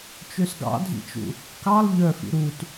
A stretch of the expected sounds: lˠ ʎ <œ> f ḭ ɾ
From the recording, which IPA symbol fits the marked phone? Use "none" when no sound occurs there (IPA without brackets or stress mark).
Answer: œ